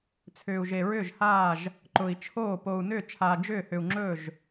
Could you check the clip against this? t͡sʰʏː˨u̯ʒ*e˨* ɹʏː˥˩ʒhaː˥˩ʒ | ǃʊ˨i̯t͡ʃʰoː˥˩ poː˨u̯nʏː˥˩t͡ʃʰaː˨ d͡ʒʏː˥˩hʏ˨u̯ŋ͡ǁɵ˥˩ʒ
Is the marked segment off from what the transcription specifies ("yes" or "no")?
no